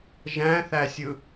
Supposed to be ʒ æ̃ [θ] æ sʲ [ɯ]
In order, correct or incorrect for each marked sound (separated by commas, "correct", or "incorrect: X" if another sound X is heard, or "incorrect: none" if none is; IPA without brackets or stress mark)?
correct, correct